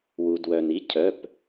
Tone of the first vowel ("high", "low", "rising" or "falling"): low